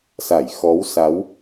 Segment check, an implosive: absent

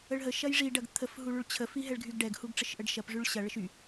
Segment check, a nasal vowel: absent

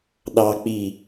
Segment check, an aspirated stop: absent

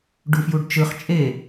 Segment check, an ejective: present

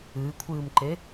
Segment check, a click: present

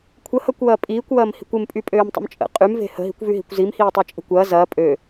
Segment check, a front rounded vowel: present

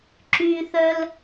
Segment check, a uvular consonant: absent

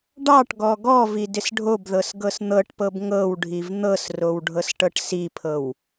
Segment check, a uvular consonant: absent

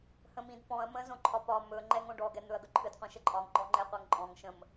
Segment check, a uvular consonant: present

